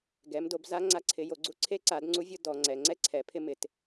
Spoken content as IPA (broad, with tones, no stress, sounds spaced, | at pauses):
ɡ ɛ˨˦ m d o˨˦ b z a˦ ŋ͡ǀ a˦ ǀʰ ɪ˨˦ j o˨˦ ɡ͡ǀ u˦ ǀʰ e˦ ǀ a˨˦ d ŋ͡ǀ u˦ vʲ ʊ˦ d ɔ˨˦ ŋ͡ǀ ɛ˨˦ ŋ͡ǀ ɛ˦ ǀʰ ɛ˨˦ pʰ ɪ˦ m ɪ˨˦ t